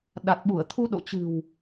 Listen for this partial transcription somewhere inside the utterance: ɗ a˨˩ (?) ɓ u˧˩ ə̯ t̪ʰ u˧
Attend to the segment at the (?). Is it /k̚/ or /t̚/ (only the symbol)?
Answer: t̚